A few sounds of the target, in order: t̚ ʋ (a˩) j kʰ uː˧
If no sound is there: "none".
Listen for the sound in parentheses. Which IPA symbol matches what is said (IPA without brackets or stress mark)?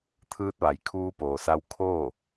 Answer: a˩